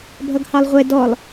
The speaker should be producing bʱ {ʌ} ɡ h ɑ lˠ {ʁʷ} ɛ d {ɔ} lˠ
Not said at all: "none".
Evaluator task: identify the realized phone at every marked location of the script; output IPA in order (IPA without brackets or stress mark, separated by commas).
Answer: ʌ, ʁʷ, ɔ